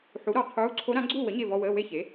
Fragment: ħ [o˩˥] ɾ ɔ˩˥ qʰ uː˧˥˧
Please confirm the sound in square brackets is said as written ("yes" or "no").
no